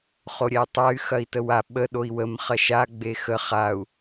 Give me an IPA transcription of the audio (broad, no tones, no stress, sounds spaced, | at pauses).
χ o ɾʲ ɛ y̯ tˤ a y̯ x ɐ i̯ t ə w a ɓ ə ɗ o i̯ w ə m χ ɐ ʃ a ɡ͡b e x ə χ a u̯